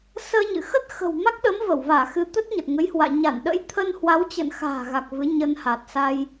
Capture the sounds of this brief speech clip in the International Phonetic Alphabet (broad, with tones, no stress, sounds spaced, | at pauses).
s əː˧ ɲ ɨ̰˧˨ x ə˦˥ t̚ x ə̤˨˩ w m a˦˥ k̚ ɗ ə˨˦ m v ə˧˩ w v aː˧˩ x ɨ˨˦ t̪ ə˦˥ t̚ ɲ ə˨˩ t̚ ŋ ə˨˦ j h w a̰ː˧˨ ɲ a˧˩ n ɗ ə̰˧˥ j t̪ʰ ə˧ n h w a˨˦ w t͡ɕ ə̰ː˧˨ n x a̤ː˨˩ ɣ a˨˩ k̚ v ɨ˨˦ ɲ ə˧ n h a˨˩ t̚ s a˧ j